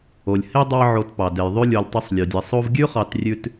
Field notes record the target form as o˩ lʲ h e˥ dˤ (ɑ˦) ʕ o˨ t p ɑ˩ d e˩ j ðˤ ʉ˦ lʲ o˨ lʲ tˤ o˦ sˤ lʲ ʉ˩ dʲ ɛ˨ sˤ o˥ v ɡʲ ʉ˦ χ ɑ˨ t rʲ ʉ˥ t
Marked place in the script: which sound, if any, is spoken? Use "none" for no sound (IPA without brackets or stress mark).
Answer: ɑ˦